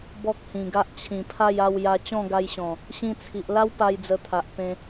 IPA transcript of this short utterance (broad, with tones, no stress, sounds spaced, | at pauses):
b ɔ˦ k̚ h ĩ˨˩ ɡ a˦ ʔ t͡ɕʰ ĩ˨˩ pʰ a˥˧ j a˥˧ w j a˧ t͡ɕ ɔ̃˥˧ ɡ a˧ j ɕ ɔ̃˨˩ | ɕ ĩ˧ t͡sʰ i˨ ʔ l a˦ w p a˧ j d͡z ə˧ t̪ʰ a˨ ʔ p ẽ˧